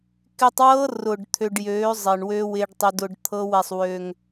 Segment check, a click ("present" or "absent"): absent